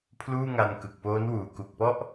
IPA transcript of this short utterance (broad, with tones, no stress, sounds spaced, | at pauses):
pʰ l uː˥˩ ŋ a˧ n k ɯ˨˩ k̚ p oː˦˥ n w uː˨˩ k u˨˩ k̚ p ɔ˥˩ ʔ